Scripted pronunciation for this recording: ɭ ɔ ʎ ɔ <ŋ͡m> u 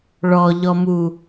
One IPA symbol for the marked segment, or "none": m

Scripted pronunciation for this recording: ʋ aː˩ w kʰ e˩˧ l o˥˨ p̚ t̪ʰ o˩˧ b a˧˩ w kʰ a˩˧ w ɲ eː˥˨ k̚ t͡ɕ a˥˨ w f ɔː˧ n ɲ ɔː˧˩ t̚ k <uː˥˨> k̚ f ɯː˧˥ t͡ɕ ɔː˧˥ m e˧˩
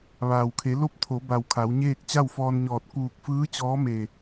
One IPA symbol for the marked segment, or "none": uː˧˩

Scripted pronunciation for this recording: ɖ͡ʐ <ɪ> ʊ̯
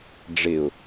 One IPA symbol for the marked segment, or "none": ɪ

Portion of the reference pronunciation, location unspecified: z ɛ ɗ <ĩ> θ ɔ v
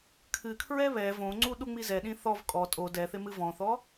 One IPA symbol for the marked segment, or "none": ĩ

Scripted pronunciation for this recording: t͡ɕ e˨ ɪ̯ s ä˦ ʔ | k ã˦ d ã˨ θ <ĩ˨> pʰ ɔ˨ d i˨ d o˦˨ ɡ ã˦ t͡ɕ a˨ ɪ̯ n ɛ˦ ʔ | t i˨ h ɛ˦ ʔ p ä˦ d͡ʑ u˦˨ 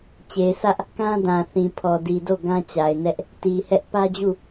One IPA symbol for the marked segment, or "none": ĩ˨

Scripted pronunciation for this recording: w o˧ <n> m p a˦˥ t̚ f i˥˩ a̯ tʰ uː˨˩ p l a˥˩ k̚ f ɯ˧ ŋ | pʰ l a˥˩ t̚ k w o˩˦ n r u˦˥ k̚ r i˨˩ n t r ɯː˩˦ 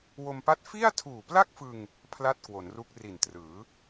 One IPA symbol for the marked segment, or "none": none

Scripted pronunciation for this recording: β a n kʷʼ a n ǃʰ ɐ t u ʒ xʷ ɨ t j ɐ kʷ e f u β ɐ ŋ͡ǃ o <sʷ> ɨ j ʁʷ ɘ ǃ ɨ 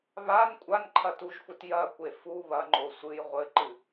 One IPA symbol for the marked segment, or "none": sʷ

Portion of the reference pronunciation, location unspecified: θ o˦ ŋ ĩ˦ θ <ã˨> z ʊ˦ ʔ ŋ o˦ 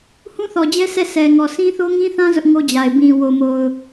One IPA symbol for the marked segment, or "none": ã˦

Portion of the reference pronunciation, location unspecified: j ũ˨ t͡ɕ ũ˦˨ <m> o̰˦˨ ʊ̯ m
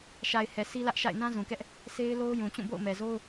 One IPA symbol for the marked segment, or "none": b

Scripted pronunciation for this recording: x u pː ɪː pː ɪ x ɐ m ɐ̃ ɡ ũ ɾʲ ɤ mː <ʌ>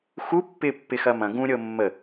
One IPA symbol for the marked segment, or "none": ə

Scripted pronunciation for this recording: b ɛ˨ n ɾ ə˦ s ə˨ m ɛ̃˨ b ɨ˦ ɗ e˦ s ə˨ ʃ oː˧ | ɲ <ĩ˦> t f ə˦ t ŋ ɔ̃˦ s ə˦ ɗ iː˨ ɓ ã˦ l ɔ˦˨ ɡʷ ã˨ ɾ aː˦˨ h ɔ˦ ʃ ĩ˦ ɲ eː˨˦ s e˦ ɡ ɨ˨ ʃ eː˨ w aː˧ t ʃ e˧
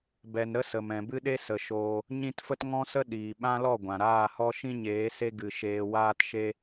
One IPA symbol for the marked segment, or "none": ĩ˦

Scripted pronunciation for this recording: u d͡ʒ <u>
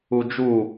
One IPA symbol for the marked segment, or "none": u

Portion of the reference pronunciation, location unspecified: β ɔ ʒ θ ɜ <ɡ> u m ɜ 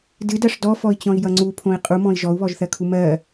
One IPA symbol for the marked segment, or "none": kʰ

